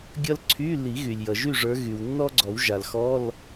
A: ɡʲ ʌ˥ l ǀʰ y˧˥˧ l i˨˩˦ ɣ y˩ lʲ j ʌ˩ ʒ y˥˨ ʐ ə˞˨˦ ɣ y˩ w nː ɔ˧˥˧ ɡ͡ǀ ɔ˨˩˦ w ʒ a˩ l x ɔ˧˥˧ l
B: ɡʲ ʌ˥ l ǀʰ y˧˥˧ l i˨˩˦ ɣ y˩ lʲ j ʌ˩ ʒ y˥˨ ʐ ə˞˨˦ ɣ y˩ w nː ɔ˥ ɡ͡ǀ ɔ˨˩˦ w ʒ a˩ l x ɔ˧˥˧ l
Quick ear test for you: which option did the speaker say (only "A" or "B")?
B